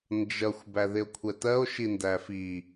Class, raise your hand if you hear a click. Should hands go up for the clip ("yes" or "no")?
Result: no